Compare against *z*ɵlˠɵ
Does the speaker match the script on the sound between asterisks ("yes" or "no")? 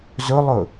yes